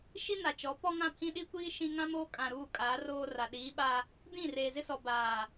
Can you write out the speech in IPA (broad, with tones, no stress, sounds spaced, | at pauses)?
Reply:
ʃ i˦ n a˨ t͡ʃ ɔ˨˦ p ɔ˦ ŋ ã˦˨ pʰ ĩ˦ ɗ i˦ kʷ iː˦ ʃ ĩ˦ ŋ ã˦ m oː˦ kʼ ã˨ ɾ uː˦˨ kʼ aː˨˦ r oː˦ r a˨ ɗ iː˨˦ ɓ a˦ | d ĩ˦˨ r eː˨ z ɪ˦ s ɔ˨ b aː˨